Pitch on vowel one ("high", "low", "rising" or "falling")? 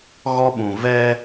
high